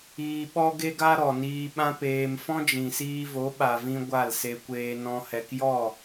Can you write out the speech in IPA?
iː˧ɓɔ˦ɡe˦ɡa˦ ɾɔ˨niː˧ ɓã˦peː˧m fɔ̃˦d͡ʒĩ˨siː˧vo˨˦ ɓa˨vĩ˧ ɡʷa˦˨lse˧kʷeː˧ nɔ̃˧ hɛ˨kjɔ˦˨

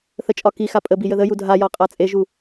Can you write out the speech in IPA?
θət͡ʃʼɒkixa pʼəbi jəðəju dʱajɒ qʼat͡sʼeʒu

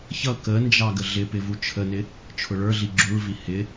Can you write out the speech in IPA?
çʌ kənd͡ʒɑ ɡəɮɪpɪ vut͡ʃʰənɪ | t͡ʃʰʊɭə˞ɮi ɡ͡ǁuɭvi hɪ

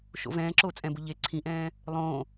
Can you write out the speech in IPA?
ʃo̰vɛ̃ːǁo t͡sʼɛ̃bʊ ʎe ǀʰĩʔɛ̃ː | lˠõ

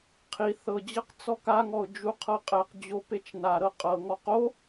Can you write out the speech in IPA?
qʰi θɤd͡ʑɤq t͡sɔkaŋɔʊ̯ d͡ʒuqʰɤqʼɛqd͡ʑo pet͡ʃnaɾɤ qʼɤŋɔq o

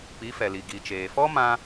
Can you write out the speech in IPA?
pi˨˦fɛ˨li˨ ɡi˨t͡ʃeː˨fɔ˦mã˧

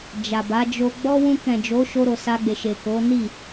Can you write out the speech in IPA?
d͡ʒa˨ba˨˦d͡ʒo˧ ɡ͡bɔ˦ wũ˧kɛ̃˨d͡ʒo˨˦ ʃo˧ɾo˨sa˧ɡ͡be˨ ʃe˨ko˨˦ni˦˨

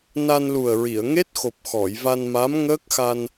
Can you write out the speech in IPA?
na˧nlu˨˩ə̯ɹi˨˩˨ə̯ ŋe˦˥t̚xo˨˩p̚xɔ˨˩˨j va˧nma˧˥mŋəː˦˥k̚xa˧n

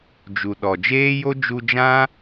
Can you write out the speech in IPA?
d͡ʒu˨ɗɔ˨ d͡ʒeː˦jo˦ d͡ʒu˧d͡ʒã˦

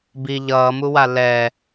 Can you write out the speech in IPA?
bi ʎʌːmuwa lɛ

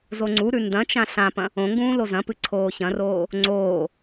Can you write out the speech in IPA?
zoŋ͡ǀuɾʉ ndɐ̃t͡ʃã ɬãpɐ̃ | õŋɡũː lozɐ̃pɨ ǀʰoːçɐ̃roː | ŋ͡ǀoː

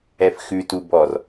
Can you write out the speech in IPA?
ɛfxʉtu bɔr

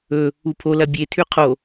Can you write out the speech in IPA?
ɵ | upʰolɐ bʲetʰʉ qʰo

